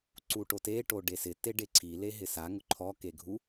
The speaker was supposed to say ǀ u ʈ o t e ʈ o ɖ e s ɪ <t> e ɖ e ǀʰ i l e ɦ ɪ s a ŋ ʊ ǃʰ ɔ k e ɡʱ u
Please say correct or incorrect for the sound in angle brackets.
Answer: correct